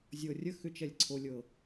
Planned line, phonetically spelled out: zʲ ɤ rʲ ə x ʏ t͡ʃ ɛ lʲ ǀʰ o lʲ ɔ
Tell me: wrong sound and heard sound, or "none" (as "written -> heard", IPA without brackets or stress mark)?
ɔ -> ɤ